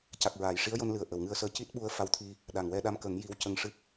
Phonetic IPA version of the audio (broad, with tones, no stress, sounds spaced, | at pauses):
c a˨˩ k̚ ɹ aː˨˩˨ j ʂ i˧˥ ə̯ j o˧ n l ɨ˨˩ ə̯ ʔ ə˨˩˨ w ŋ ɨ˧ ə̯ s əː˧ c i˦˥ t̚ ɓ u˧ ə̯ f a˧ w t̪ʰ i˧ | ɗ a˨˩ ŋ w ɛ˧˥ ɗ a˧ m k ə˨˩˦ ŋ j i˧˥ w c ə˧ ŋ ʂ ɨ˦˥ k̚